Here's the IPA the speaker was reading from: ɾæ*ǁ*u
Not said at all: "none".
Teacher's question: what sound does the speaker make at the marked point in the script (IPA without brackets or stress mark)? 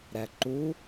ǃ